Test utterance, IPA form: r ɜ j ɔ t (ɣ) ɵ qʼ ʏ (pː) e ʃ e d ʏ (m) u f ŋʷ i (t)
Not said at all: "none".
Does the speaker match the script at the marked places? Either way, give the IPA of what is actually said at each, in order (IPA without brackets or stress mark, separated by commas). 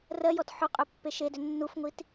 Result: ħ, pː, nː, t